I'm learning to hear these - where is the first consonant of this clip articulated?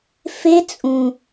lips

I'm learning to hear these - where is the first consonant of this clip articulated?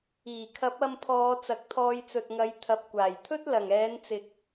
velum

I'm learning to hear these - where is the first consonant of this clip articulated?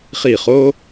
uvula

